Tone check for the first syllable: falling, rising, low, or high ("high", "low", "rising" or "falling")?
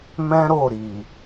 high